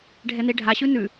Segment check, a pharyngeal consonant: absent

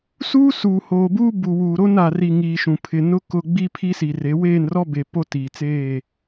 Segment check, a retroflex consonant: absent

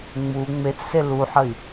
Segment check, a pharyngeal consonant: present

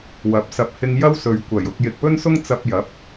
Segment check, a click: absent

